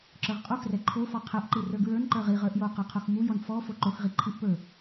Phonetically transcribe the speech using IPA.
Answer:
ǁ ə˞ ʁ qʼ o x r ɛ ǃʰ o f ɔ qʰ ɛ ʔ ǃ i r ə˞ ɡ ɹ ə˞ n ǃ ə˞ ʁ i ʁ ə˞ ʔ j o q ə˞ qʰ o x m u j ɔ n f ɔ f o ǃ o x ʁ i ǃʰ i ʔ p ə˞

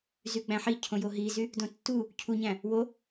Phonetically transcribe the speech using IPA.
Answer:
z y ɡ͡b æ̃ ħ i cʰ õ j o ɦ i z y | d õ tː u | cʰ u ɲ æ̃ | w o

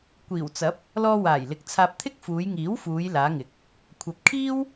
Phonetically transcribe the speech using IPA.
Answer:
kʷ iː˨˩ w t͡s ɐ˨˥ p̚ | l ɔː˧ w aː˨˩ j l ɪ˨˥ k̚ t͡sʰ aː˧ p̚ t̪ʰ ɪ˥ k̚ f uː˨˧ j ŋ iː˨˥ w f uː˨˧ j l aː˨˧ ŋ ɪ˨˥ k̚ | kʷʰ ɐ˨ p̚ kʰ iː˥ w

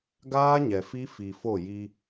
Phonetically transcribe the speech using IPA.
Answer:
ɡ aː˦ ɲ ɛ˨ f i˦ f i˨ f o˦˨ j i˦

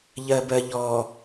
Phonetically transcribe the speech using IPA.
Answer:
ʎ ɜ b ɜ ʎ ɔ

